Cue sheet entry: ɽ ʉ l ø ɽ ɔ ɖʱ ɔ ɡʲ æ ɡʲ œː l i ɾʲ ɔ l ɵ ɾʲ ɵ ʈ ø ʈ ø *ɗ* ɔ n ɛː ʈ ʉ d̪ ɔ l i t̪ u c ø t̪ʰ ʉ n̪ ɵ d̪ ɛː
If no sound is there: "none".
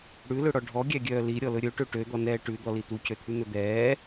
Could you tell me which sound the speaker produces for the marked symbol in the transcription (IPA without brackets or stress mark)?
d̪